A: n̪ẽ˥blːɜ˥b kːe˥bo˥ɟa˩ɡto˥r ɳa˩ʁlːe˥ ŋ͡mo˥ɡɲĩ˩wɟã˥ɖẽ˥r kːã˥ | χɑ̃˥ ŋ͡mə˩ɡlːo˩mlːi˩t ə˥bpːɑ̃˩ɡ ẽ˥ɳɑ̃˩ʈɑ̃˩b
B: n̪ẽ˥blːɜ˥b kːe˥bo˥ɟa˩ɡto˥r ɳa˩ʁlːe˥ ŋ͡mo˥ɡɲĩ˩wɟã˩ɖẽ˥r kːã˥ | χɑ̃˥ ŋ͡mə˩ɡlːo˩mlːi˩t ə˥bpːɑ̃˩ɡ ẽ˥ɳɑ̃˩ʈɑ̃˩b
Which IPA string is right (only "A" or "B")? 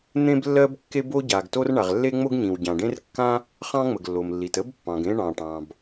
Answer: B